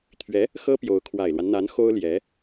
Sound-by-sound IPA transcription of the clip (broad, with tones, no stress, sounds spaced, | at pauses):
t̪ʰ ɥ ɛ˧˥ | x ɤ˥ p j o˧˥ ʊ̯ kʰ w a˨˩ ɪ̯ l w a˦ n n̪ a˧˥ n x o˥ ʊ̯ l j ɛ˧˥